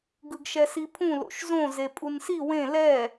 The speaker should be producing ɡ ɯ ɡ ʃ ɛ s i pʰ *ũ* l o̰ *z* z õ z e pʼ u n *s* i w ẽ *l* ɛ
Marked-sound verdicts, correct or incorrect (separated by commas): correct, incorrect, correct, correct